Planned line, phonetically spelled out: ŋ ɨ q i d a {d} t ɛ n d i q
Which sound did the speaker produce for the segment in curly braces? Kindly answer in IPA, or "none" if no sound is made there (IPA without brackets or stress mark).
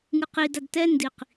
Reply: d